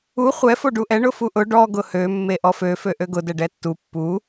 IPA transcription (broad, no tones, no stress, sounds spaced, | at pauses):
u χʷ ɛ f o ɖ u ʔ ɛ ɳ ʊ f u ʔ ʊ ɖ ɔ ɡ ʊ h ø mː e ʔ ɔ f ø f ø ʔ ø ɡ ʊ d ɛ ɖ ɛ tː u pː u